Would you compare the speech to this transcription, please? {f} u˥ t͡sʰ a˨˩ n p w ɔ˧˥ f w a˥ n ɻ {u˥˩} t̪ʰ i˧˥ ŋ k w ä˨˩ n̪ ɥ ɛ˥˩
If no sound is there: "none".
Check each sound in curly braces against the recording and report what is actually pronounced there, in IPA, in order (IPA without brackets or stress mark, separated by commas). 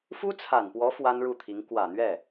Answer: f, u˥˩